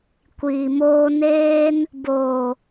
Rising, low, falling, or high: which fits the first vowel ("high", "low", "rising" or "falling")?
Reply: low